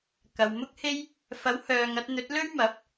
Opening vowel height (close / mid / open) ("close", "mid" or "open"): open